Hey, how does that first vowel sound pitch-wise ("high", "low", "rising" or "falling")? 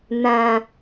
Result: low